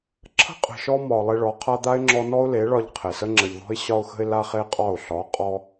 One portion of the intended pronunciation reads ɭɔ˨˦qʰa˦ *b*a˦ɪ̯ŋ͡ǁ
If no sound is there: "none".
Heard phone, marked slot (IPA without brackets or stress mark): d̪